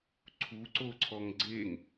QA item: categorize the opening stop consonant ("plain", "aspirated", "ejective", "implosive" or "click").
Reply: click